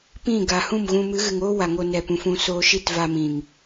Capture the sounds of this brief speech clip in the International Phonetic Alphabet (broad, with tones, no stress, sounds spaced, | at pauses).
p ĩ˦˨ ɡ a˨ h ũ˦˨ m ɣ ũ˧ m ɨ˨˦ ɣ ɨ˨ ŋ oː˦ w a˨ ŋ o˧ n ɛ˨ p ũ˨ f ũ˧ s oː˧ ʃ i˦˨ t v a˧ m ĩ˨ ŋ